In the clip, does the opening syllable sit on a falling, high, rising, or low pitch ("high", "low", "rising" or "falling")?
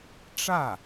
falling